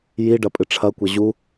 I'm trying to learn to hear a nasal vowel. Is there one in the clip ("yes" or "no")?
no